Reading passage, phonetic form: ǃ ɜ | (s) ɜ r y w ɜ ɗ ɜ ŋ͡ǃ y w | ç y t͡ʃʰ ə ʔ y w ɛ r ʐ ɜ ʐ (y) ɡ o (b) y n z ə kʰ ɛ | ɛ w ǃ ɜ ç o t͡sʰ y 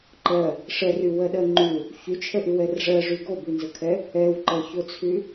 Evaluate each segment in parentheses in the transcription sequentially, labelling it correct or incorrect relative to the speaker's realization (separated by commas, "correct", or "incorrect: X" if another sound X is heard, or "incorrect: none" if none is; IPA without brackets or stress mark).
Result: incorrect: ʂ, correct, correct